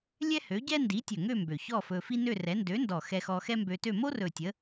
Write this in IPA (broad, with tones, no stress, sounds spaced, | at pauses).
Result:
lʲ ɛ˥ h ø˨˥ ɟ ɛ˥ n d i˨˥ tʲ ɵ˨˩ ŋ ø˥˧ m b ø˨˩ ç ɔ˥˧ f ɵ˧ f i˥ n ø˥˧ r ɛ˨˥ n d ø˨˥ n d ɔ˨˩ x ɛ˧ x ɔ˧ x ɛ˥ m b ø˧ t ø˥˧ m o˥ r ɵ˨˩ tʲ ə˨˥